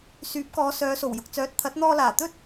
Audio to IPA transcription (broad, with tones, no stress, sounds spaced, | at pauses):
s yː˨˥ p̚ k ɔː˨˧ s œː˨˧ s o˨˩ w j ʊ˨ k̚ t͡s œː˨˥ t̚ t̪ʰ ɐ˨˥ t̚ n̪ ɔː˧ l aː˨˩ t̪ ɵ˥ t̚